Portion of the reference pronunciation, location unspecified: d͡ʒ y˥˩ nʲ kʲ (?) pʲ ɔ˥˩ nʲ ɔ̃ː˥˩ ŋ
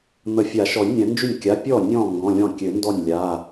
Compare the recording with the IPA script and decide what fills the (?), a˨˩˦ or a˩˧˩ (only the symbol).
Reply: a˩˧˩